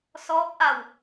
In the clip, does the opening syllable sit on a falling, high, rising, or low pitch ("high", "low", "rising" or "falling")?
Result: rising